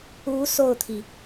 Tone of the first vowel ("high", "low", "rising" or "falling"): rising